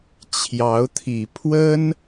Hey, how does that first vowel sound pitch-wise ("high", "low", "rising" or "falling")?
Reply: rising